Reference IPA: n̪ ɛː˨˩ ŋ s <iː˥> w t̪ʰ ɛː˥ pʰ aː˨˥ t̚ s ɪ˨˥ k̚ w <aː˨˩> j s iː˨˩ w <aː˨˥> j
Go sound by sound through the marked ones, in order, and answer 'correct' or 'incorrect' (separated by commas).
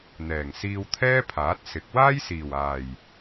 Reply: incorrect, incorrect, incorrect